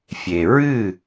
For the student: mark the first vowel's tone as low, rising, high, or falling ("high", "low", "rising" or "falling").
low